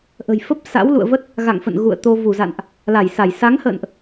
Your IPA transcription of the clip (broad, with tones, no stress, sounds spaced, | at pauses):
ʔ ə̤˨˩ j f ə˦˥ p̚ s a̰˧˥ w l ṵ˧˨ ə̯ v ə˦˥ t̚ | ɣ a̰˧˨ ŋ f ə̰˧˨ n ɣ ṵ˧˨ ə̯ t̪ o˧ v u˧˩ z a̰˧˨ n ʔ | l a˧˩ j s a˧˩ j s a˨˦ ŋ h ə̰ː˧˨ n ʔ